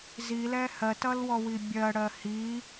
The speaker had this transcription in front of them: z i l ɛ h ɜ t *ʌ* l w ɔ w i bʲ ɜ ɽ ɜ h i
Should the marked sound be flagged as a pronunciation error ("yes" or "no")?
no